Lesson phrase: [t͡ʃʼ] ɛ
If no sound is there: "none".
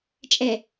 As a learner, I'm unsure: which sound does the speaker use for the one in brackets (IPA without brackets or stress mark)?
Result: t͡ʃʼ